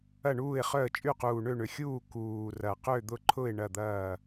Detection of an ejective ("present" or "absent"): present